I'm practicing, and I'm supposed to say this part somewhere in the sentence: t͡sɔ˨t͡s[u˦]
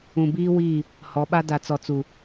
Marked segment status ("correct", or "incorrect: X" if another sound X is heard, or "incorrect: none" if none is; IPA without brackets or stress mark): incorrect: u˨